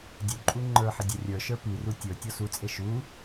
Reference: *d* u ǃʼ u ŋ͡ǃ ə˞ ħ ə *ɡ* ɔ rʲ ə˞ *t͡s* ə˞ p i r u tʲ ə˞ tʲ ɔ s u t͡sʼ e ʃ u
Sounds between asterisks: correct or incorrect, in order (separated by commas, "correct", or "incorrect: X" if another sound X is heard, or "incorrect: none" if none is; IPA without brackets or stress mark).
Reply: incorrect: dʲ, incorrect: dʲ, incorrect: ʃ